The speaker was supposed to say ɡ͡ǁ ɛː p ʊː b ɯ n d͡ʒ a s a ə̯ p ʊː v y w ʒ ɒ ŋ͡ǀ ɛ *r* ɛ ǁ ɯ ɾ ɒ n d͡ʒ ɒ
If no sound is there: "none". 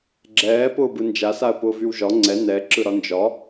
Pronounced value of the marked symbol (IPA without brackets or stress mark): n